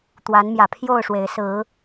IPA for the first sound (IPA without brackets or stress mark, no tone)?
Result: t̪